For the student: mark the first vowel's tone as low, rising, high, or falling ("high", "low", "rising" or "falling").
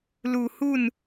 low